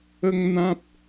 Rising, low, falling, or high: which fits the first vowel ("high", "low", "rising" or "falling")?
high